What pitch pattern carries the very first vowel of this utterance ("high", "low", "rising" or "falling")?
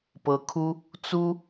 rising